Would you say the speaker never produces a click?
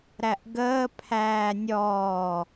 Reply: yes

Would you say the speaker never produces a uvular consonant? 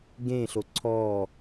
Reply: yes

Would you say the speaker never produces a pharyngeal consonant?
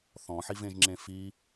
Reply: no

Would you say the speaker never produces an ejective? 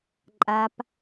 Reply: no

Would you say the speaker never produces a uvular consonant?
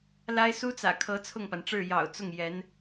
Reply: yes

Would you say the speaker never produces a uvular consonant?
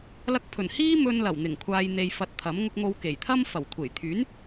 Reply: yes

